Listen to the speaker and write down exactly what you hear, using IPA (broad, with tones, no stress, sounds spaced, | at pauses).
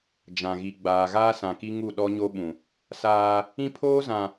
d͡ʒ ã˨ ɣ i˨ ɡ͡b aː˨ ɣ aː˦ s ã˨ k i˦ ŋ u˦˨ ɗ ɔ˦ ɲ o˦ ɓ ũ˨ | s aː˦ | ĩ˦ pʰ oː˦ z ã˨